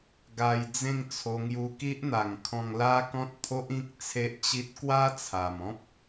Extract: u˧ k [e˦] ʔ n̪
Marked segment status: incorrect: i˦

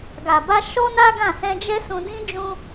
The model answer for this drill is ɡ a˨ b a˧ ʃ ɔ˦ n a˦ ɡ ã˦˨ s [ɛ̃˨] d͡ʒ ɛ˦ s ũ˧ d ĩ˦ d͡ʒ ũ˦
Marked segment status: incorrect: ɛ̃˧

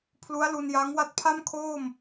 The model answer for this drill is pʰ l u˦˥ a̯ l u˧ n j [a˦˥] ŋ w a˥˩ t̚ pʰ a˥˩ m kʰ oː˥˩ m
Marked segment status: correct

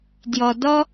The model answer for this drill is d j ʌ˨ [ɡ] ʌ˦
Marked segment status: incorrect: d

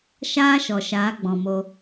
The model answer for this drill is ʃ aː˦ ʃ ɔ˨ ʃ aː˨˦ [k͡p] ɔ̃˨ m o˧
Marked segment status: incorrect: ɡ͡b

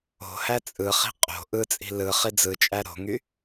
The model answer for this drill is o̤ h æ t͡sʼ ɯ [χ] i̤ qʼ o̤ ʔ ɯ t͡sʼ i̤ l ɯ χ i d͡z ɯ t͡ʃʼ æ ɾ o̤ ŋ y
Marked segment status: correct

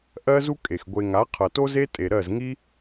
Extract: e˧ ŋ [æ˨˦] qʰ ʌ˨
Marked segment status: incorrect: a˨˦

